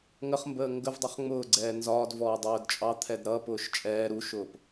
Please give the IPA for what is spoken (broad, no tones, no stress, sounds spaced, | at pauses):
ŋ ə χ m b əː ŋ ɡ ə v dˤ ɛ χ ŋ͡m ʊː ɡ͡ǀ ɛː n z ɒː d v ɔː dˤ ʊː d t͡ʃʼ ɑ t̪ʰ ɛ d ɾ ʌ p ʊː ʃ t͡ʃʼ ɛː ɾ u ʃ ʊː p